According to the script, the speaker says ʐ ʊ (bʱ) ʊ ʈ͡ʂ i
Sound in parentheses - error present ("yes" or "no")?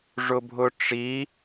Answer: no